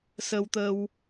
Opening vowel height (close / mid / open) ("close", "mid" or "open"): mid